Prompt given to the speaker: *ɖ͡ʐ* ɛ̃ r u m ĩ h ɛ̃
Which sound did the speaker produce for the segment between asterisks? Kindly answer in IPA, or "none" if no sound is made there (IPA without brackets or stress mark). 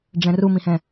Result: ɖ͡ʐ